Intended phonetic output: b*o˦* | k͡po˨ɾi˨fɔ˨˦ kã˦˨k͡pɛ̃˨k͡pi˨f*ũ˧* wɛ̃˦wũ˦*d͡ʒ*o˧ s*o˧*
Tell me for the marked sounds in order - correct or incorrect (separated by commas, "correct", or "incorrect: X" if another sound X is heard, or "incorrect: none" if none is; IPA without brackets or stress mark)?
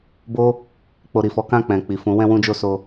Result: correct, incorrect: ũ˨˦, correct, correct